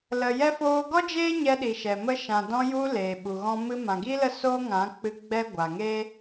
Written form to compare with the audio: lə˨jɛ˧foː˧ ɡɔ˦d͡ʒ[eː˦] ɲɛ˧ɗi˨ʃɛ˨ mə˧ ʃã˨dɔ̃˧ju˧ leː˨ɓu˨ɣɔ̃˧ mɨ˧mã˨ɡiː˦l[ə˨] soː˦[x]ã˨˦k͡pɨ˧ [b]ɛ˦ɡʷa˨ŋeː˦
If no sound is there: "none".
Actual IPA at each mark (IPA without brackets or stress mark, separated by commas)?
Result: eː˦, ə˦˨, ŋ, ɡ͡b